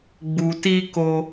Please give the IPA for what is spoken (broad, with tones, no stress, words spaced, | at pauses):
ɡ͡bu˨ti˦ko˧